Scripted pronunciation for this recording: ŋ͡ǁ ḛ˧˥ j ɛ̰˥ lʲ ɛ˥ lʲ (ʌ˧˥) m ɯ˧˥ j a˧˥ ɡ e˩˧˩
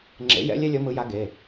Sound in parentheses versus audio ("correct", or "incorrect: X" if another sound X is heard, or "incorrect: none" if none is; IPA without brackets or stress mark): correct